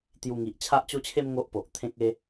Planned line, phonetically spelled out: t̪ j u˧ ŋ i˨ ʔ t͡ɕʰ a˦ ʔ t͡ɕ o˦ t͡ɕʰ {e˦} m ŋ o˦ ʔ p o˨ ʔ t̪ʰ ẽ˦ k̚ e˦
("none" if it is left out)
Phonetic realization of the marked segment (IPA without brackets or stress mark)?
e˦